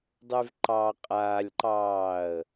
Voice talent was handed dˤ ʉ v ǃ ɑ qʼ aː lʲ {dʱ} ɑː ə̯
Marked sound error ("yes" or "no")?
yes